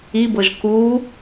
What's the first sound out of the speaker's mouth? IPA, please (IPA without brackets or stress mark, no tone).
i